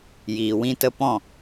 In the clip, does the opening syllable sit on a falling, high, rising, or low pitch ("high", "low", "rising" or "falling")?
low